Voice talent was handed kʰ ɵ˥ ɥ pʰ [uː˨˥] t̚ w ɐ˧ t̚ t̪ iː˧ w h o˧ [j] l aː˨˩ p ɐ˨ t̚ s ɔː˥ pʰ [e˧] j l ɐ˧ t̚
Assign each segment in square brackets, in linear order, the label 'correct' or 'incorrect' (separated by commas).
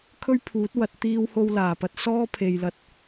correct, incorrect, incorrect